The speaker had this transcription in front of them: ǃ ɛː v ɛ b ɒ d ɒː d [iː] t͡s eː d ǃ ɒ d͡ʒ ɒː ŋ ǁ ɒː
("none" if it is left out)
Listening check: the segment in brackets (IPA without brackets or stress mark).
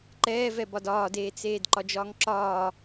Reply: eː